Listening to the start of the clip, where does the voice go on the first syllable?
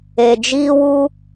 low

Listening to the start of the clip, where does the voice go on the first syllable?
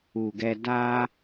low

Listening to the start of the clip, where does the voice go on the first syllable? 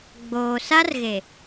low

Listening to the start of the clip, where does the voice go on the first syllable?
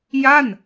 falling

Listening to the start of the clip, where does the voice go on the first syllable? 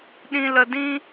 low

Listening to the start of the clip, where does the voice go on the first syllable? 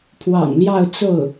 low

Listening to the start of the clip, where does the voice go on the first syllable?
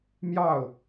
falling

